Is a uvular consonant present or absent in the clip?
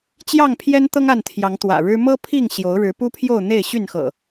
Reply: absent